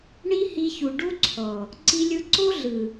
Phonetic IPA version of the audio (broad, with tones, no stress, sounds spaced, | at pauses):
ɳ i˦ h i˧ ç u˨ ɖ u˦ ǀʰ ɔ˨ | ǀ i˧ lʲ ɯ˧ ǀ o˦ ɮ ɯ˨